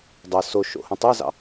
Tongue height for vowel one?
high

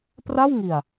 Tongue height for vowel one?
low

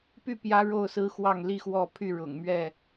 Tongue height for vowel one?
high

